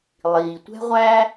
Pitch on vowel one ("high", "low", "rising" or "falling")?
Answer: low